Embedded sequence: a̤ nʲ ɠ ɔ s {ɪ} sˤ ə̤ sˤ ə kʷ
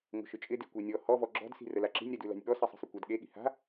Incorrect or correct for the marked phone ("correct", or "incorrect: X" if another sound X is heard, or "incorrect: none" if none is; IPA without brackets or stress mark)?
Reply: correct